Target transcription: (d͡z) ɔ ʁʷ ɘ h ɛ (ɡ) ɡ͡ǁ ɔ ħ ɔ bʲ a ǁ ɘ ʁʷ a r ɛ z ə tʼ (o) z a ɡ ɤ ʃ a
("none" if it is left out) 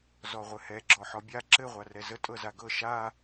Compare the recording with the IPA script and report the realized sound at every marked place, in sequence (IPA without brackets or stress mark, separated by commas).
z, none, ɤ